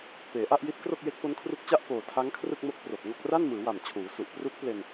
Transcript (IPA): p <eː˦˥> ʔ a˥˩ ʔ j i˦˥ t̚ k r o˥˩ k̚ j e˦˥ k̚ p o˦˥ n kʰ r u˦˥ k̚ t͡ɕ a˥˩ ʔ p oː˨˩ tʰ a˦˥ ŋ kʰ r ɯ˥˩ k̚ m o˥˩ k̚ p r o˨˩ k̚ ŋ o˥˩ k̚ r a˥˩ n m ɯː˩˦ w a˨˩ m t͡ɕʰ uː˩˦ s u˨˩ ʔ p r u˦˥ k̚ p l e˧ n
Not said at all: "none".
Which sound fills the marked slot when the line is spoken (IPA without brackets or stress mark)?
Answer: eː˩˦